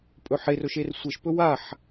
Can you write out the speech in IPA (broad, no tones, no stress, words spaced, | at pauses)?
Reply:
pʼɵħerɵʃ ersʷeʃpɵ waħ